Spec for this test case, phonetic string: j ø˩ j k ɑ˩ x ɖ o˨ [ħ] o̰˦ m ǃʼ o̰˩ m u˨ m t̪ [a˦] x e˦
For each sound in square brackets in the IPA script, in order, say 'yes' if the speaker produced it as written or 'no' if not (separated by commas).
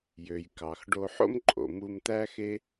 yes, no